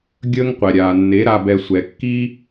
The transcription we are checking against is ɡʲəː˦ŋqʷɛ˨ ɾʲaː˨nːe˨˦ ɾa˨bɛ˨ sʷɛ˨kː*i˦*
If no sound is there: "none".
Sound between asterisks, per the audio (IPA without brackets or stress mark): i˦